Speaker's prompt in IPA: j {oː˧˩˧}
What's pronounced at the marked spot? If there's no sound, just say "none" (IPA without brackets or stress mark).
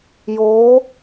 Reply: oː˧˥